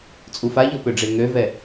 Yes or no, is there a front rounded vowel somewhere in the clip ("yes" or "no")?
yes